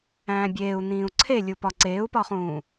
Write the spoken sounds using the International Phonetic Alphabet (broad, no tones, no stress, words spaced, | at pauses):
æ̃ːbʲeːu̯n̪ĩːu̯ ǀʰelʲupɒ ǀeːu̯pɒχũː